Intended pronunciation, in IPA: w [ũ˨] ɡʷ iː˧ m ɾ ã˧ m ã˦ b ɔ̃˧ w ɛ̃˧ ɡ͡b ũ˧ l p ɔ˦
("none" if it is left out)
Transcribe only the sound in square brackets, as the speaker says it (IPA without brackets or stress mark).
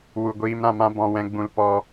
u˨